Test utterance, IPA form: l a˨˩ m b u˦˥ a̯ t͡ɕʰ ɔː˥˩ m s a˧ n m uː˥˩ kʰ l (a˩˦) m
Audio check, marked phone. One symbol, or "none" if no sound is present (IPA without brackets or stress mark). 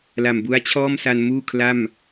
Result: a˥˩